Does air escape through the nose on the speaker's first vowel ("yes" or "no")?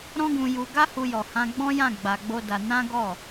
yes